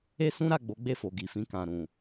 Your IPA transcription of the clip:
e˦ s ũ˦ ɾ a˦˨ ɡ͡b o˨˦ ɡ͡b e˦˨ f o˨ ɡ i˨ f ĩ˧ k ã˨ ɾ ũ˨

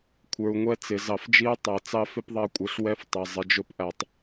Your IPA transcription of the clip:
kʷʰ ə˞˨ u̯ ŋʷ ɛ˦ t͡s ɪ˨ z ɑ˨ f d͡ʒ i˦ u̯ tˤ æ˨ t͡s ɑ˦ f ɪ˦ p ðˤ ɑ˦ kʷʼ ə˞˨ ɬ w ɛ˦ f tˤ ə˨ zˤ ɪ˨ d͡ʒ ʊ˦ p ʔ æ˨ tˤ

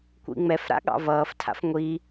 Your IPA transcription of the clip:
kʷ ḭ ŋ͡m ɛ f ɾ a̰ ɠ ɑ̰ v ʌː f tʰ a̰ f ŋʷ i

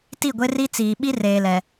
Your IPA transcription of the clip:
t i˦˨ ɡʷ e˦ r i˦ t͡s iː˨ ɓ i˦ r eː˨ l ɛ˨

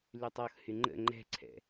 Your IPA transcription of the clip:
l y tˤ ɔ x h y ŋ͡ǃ ə̰ ŋ͡ǃ ɛ̤ ǀʰ ɛ̰

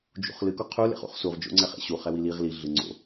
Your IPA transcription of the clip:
d͡ʒ ṵ χ l ɨ k o qʰ u l ḛ χ ṵ χ s u ʁ d͡ʒ o̰ ŋ͡ǀ ɛ χ ḛ ɕ u χ ɛ w i l i ʁ l i ɮ ɨ ŋ͡ǀ o̰

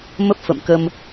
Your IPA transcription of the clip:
m ə˦˥ p̚ f ə̰˧˨ m k ə˧ m

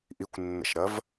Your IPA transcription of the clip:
ʔ i kʷ nː ə̰ ʃ ɾ ɐ v

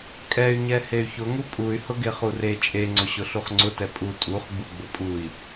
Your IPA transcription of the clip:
kʼ ɛ y̯ ɲ ɛ h e y̯ ç ʊ ŋ u pʼ u y̯ h ʊ ɡ e χ u r e t͡ʃʼ e ŋ͡ǀ ʊ ɕ ʊ ɬ u χ ŋ͡ǀ ʊ t ɛ pʼ u tʼ u χ ɡ͡b u ɡ͡b ʊ pʼ u i̯

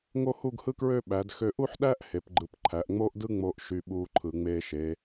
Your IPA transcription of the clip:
ŋ o˥ h u˥˧ ɡ h ɯ˥ k ɹ ø˥˧ ɓ æ˩˧ d x ø˧ ʔ u˥ ħ ɗ æ˥ ʔ h e˩˧ p ɡ͡ǃ ɯ˩˧ p ǃʰ æ˩˧ ʔ ŋ͡m oː˥ ʔ d ɯ˥ ŋ͡m oː˧ ʔ ʃ y˧ ɓ uː˧ ǃʰ ɯ˩˧ ŋ͡m eː˧ ʃ e˩˧

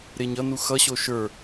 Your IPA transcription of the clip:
ɾ e ɲ ʌ n u x ʌ ɕ o ʃ ə˞

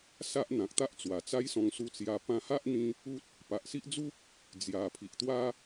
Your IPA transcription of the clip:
s a˦ ʔ n̪ ã˨ k̚ t̪ a˦ ʔ t͡s w a˨˩ t͡s a˦ j s ɔ̃˧ ŋ s u˧ t͡s j a˧ p ã˧ h a˦ ʔ n̪ ĩ˧ | u˦ t̚ | p a˨ ʔ s i˦ ʔ d͡z u˦ k̚ | d͡z j a˨˩ pʰ i˨ ʔ t̪ w a˦

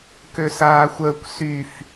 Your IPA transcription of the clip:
k ø s aː xʷ əː kʷ s y f

